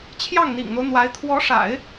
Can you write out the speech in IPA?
t͡ɕʰjɑ˥˩ŋn̪ḭ˨˩ŋn̪o˦ʊ̯n̪wa˧˥ɪ̯ t̪ʰwɔ˧˥ʂa̰˨˩˦ɪ̯

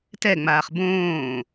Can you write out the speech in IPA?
tɛŋ͡maːχ bõː

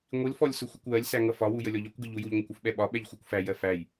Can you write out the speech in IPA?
ŋʷilfɔlʲ sʊxʷəkʷwɜlʲsæ ŋʌfɒwu jəlʲɔʎɒkʷɡɪ ʎujuʎŋʷɪkʷ ufɓɛɓɒɓɛʎ xʷɜkʷfæjɜ fæj

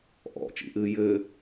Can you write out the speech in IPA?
ʔɔ̰t͡ʃḭʔɨː jɘː

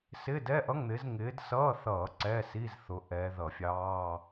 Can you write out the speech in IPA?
sɪː˧˥˧dɛ˧˥˧ʔʌ˧˥˧ŋn̪ɪː˨˦z ŋɪː˨˦dsʌː˧˥˧θʌː˧˩˧ ǀɛː˧˥˧siː˧˥˧zθʊ˨˦ ʔɛː˨˦ðʌ˧˩˧fʲɑː˧˥˧

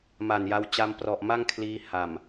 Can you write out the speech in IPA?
ma˨˩nja˧w t͡ɕa˧mprɔ˨˩ʔ ma˥˩ŋkʰliː˧ ha˨˩m

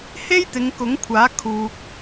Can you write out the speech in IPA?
he˥jt̪ɪ˨˧ŋ kʊ˨˥ŋkʷʰaː˨˥kʰuː˨k̚

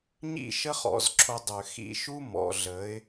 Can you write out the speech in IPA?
ɲḭ˦˨ʃə˦χɔ̰˨z ǁʰo˧dˤø˨ xḭ˧ʃu˦ mɔ̰˨ɮə˨˦ɪ̯

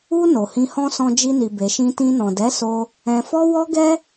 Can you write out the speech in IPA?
u˧ no˨hĩ˧hɔ̃˦ sɔ̃˧d͡ʒi˧ni˨ be˨ʃĩ˧tĩ˧ nɔ̃˨dɛ˨˦so˧ | ɛ̃˧fɔ˦ wɔ˦ ɡɛ˦

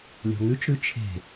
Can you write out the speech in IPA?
lʲɔ̤ŋʉt͡ʃɾʉ t͡ʃʰe̤

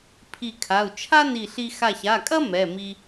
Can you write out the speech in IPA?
pʰi˧˩kʰa˩˧˩u̯ t͡ʃʰa˥ni˧˩ɬi˧ xa˧˩ça˩˧˩kʼɐ˥ mɛ˩˧˩ mi˧

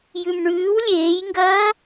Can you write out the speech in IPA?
jʉmɳʉːw lʲeːjŋɡɐː

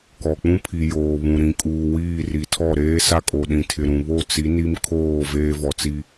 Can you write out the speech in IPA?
kɔ˨k͡pũ˦pʰi˨ joː˨βũ˨ ɾĩ˨kʼuː˨wiː˦˨ ri˨tʰɔ˦˨ ɾeː˦sa˦kʼo˨ ɗĩ˨tʰɪ˨ɾũ˨ βo˦˨t͡si˨˦ ni˦mkʰoː˦˨ veː˦vɔ˨t͡si˦

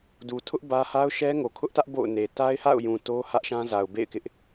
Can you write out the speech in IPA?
du˨tʰʊ˦ʔ bä˦ ha˦ʊ̯ʃɛ˦ŋo˨ kʰʊ˦ʔtä˦ʔ bo̰˦˨ʊ̯ne˨ ta˦ɪ̯ha̰˦˨ʊ̯jũ˨ to˦ hä˦ʔʃã˦za˨ʊ̯ bḛ˦˨ɪ̯kɪ˦ʔ

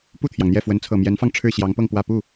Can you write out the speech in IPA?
pu˥˩t̪ʰjɑ˩ŋn̪jɛ˥˩ fwə˧˥nt͡sʰɤ˨˩mjɛ˧˥nfɑ˧ŋ ʈ͡ʂʰɻ̩˥˩ ɕjɑ˧˥ŋpɤ˥˧ŋpwä˥˧ pu˥˩

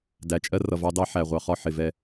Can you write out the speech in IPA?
dæ˨˦t͡ʃʼɜ˦ rʌ˨vɑ˦dɑ˦ ħæ˨ʁʷɑ˦χɒ˦ ħɪ˨ vɛ˦

